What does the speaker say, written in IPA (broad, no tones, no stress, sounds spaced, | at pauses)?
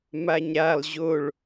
m a ɲ ɾ a lˠ ʑ o ɭ